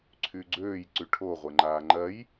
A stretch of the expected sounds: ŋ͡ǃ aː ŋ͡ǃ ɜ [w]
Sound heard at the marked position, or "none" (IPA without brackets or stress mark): j